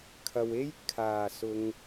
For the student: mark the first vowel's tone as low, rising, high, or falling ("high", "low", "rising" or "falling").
low